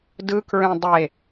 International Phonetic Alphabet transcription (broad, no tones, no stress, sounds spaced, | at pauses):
d ɯ k ɹ ẽ dˤ e